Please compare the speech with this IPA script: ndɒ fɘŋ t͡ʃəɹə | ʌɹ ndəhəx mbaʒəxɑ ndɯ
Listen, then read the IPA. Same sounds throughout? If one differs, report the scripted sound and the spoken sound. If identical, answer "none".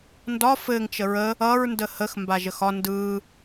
ɑ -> ɒ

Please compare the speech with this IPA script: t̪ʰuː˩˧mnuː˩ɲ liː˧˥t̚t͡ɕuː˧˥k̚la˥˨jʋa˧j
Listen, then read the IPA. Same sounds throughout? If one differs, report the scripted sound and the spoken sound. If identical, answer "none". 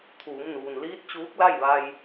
ɲ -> n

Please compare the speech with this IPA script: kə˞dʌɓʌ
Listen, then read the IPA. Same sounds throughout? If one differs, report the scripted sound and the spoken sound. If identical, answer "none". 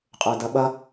k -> qʼ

